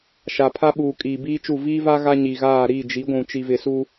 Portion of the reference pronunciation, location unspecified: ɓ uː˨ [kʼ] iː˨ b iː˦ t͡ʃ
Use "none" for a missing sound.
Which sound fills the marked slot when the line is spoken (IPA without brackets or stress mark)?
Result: kʼ